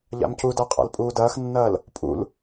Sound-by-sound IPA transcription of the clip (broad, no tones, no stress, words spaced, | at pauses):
ʎa̰mcudæqʼa̰l pʼuːdɐːxnːɐːl | pʼṵl